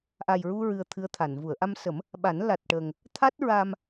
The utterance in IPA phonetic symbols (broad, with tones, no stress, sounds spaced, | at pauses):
ʔ a˨˩ j ɹ u˧ ɹ ɨ˧ ə̯ t̪ʰ ɨ˧˥ ə̯ t̪ʰ a˨˩˨ n v u˨˩˨ ə̯ ʔ a˧ m s ə˨˩˦ m | ɓ a˨˩˦ n l a˨˩ t̚ ʈ ə˨˩ ŋ | t̪ʰ a˦˥ t̚ ɹ a˧ m